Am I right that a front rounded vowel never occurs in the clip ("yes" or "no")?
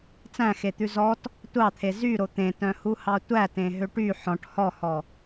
no